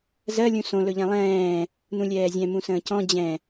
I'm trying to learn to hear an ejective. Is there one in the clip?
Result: no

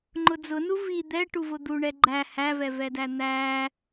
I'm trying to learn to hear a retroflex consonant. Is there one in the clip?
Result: yes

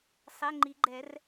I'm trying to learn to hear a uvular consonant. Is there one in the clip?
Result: no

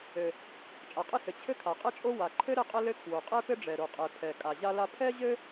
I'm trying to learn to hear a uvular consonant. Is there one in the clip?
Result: yes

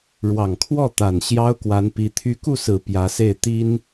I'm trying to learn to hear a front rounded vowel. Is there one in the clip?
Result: yes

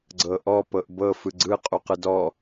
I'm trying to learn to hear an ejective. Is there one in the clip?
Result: yes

